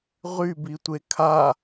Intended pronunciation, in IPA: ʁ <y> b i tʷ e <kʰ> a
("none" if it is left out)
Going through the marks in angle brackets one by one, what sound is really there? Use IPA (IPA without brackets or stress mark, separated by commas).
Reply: y, kʰ